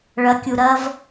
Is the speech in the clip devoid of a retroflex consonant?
no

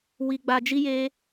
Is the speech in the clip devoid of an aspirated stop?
yes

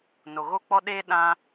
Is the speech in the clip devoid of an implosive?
no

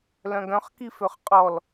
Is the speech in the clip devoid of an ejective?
no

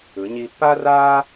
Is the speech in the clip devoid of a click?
yes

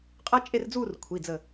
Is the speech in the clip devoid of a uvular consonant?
no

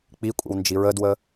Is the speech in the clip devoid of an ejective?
no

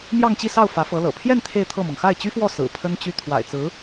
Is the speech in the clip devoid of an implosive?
yes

